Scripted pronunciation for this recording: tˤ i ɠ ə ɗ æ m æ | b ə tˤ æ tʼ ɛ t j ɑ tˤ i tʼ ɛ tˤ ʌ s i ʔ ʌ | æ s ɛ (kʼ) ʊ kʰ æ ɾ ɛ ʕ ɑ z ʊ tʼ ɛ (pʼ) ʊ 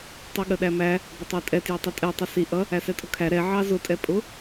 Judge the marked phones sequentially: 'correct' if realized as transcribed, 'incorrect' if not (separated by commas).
incorrect, correct